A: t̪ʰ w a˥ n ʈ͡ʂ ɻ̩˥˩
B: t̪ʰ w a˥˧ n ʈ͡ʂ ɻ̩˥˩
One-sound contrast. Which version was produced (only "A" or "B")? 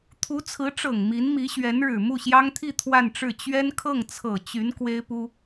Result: B